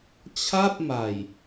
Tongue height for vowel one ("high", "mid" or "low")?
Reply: low